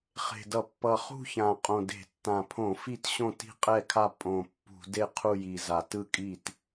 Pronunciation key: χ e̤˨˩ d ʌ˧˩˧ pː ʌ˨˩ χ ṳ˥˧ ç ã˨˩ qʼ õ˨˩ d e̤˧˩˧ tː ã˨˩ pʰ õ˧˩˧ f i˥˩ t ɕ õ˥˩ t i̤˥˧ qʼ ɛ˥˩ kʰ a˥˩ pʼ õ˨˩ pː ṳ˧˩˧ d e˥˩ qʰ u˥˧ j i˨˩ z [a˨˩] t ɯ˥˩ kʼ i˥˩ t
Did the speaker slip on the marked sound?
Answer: no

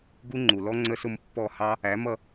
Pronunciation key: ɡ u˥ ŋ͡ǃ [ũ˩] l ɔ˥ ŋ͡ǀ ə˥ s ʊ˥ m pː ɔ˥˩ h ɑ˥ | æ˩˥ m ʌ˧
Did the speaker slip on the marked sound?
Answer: yes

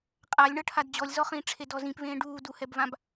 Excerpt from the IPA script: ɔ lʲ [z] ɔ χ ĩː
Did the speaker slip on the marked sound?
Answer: no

